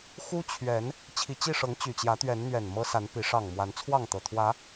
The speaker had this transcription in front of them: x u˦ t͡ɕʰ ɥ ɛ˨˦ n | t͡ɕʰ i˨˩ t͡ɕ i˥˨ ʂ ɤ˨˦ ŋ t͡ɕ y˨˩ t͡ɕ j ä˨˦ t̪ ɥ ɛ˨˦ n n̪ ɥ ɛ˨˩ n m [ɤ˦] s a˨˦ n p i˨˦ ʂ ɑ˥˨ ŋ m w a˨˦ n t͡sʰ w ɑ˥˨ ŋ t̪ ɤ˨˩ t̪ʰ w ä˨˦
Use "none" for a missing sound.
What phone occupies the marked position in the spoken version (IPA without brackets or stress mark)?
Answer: ɤ˦